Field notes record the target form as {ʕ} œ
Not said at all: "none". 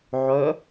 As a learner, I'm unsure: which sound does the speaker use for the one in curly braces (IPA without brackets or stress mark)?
ʕ